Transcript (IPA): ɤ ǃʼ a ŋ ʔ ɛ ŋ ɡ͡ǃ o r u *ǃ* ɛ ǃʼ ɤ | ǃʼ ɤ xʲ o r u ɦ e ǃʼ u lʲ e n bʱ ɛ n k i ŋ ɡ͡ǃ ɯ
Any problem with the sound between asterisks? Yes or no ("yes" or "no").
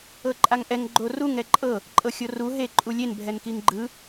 yes